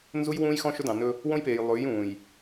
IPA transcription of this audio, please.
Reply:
n z u˦ j w ũː˦ j x ɔ̃˦ ʃ ɵ˦ d ɑ̃˨ n ɵ˦ | w õ˦ j p eː˨ j lˠ ʉː˨˦ j ũː˨ j

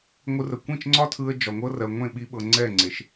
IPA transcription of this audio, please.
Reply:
ŋʷ ɯ˧ r ə˨ kʷ ĩ˦˨ t͡ʃ ŋ͡ǀ ɒ˦ tʰ ɯ˧ ə̯ d͡ʒ ɒ˨ ŋʷ ɤ˦ r ɜ˨ ŋʷ ẽ˦˨ ɓ i˧ ɓ ɤ˨ ŋ͡ǀ ɛ˦˨ ŋ͡ǀ e˨ ʃ

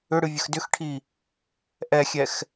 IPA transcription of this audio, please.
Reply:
ʏ ɽ ɨ vʲ ə x d ʏ x ʈʰ i | ʔ ɛ xʲ ɛ x

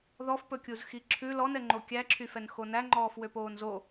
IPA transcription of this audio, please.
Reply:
ð ɔ f p ɵ kʲ u z x i ǁʰ ʉ l ɔ n ɛ ŋ͡ǃ o kʲ æ ǁʰ y f ɛ n x o n æ ŋ͡ǃ ɔː f w ø p oː n z o

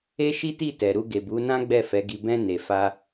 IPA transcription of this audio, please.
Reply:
e˦ ʃ i˦ t i˦˨ t ɛ˨ ɾ u˧ ɡ e˨ b u˨˦ n ã˦ ɡ͡b ɛ˦˨ f ɛ˨˦ ɡ i˧ b ɛ̃˦ n e˧ f a˦

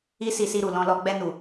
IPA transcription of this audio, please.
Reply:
i˦ s i˧ s i˧ ɾ u˨ l ɔ̃˧ l ɔ˧ ɡ͡b ɛ˧ n u˨

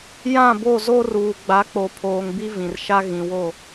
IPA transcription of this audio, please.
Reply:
j ã˦˨ b o˦˨ z o˦ r uː˨ ɡ͡b a˨˦ k͡p o˨ pʰ oː˨ ŋ b i˦ v ĩ˨ r ʃ a˦ ɣ ĩ˨ w o˦˨

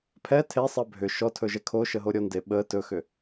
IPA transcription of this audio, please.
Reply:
pʰ ɛ tʰ e sˤ ɜ bʱ ʏ ʃ ɔ tʰ ɵ ʒ ɛ kʰ o ʃ ə ɦ o ɾʲ ɔ n d e ɓ ə t ɵ x ʏ

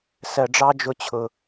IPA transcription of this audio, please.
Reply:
s ɜ˨ ɖ͡ʐ ɑ˦ d͡ʒ ʊ˨ t͡ɕʰ ʊ˨

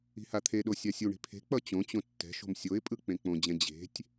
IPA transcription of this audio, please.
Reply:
i̤ h a t̪ʰ e ɗ o sʲ a sʲ u ɳ i̤ pʰ e̤ k͡p ʌ t͡ɕ õ t͡ɕ õ tː ɛ̤ ʃ o̤ m sʲ o ɪ̯ pʼ ɯ k͡p ẽ k͡p õ d͡ʑ ɛ̃ d͡ʑ e̤ tʲ

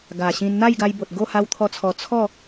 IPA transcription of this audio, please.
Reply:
ɡ a˨˩ ɕ ĩ˧ n n̪ a˥˧ j ɡ a˧ j b o˨ t̚ ɡ o˥˧ h a˧ w t̪ʰ ɔ˧ t͡sʰ ɔ˨˩ t͡sʰ ɔ˥˧

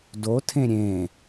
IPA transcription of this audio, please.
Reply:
d o tʰ ẽ ɾʲ ẽ

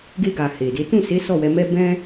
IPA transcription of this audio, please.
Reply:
ɡ e˧ ɡ a˨ h e˨ d e˨˦ t ũ˦˨ s e˨˦ s ɔ˦˨ w ɛ˨˦ m ɛ˦ b ɛ̃˦

